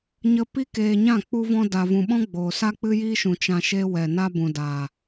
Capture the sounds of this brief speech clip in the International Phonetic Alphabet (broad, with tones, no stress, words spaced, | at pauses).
ɲə˧pi˦ keː˧ɲã˦˨ k͡pu˦vɔ̃˦ da˧vũ˧ ɓɔ̃˦ɡ͡boː˨sa˦ k͡pɨ˦jiː˦ʃũ˨ t͡ʃã˧ʃe˦ wɛ˨na˦ bũ˨daː˨